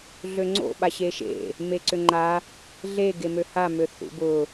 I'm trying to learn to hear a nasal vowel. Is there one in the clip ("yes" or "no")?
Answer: no